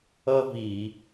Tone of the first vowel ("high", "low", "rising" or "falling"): high